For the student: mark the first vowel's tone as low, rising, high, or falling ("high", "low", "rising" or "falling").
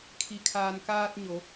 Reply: low